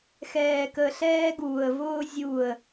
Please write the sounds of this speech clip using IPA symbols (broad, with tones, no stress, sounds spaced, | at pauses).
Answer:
x ɛː˨ k ə˨ ɬ ɛː˧ ɡ uː˨ ə̯ v ʊː˧ zʲ uː˨ ə̯